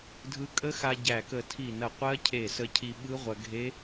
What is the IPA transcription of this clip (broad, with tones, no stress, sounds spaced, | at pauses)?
dʱ ɯ˧ kʼ ə˦˥ x a˧ ɟ æ˧˩ k ə˧˩ tʰ i˧˩ n ɐ˧˩ qʷ ɜ˦˥ cʰ e˧˩ s ə˧ cʰ i˧ ɓ ɯ˦˥ ʁʷ ɐ˧ ɡʱ e˦˥